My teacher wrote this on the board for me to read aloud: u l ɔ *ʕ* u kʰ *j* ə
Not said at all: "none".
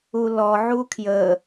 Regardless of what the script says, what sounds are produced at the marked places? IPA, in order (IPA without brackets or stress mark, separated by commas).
ʕ, j